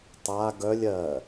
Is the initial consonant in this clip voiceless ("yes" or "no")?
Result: yes